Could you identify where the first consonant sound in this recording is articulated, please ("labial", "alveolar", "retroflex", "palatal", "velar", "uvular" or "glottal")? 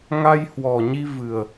velar